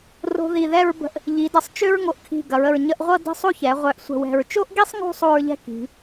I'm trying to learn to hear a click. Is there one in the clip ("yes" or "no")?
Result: no